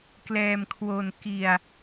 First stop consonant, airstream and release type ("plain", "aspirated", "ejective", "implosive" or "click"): plain